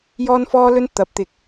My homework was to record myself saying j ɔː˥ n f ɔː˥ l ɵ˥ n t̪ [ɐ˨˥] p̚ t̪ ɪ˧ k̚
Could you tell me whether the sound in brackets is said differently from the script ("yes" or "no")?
no